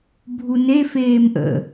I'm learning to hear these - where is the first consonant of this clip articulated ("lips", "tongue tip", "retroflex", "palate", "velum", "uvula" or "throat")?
lips